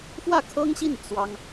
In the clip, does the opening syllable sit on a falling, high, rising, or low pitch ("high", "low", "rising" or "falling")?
falling